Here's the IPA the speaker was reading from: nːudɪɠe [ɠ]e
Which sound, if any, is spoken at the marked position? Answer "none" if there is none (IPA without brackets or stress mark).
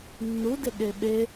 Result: ɓ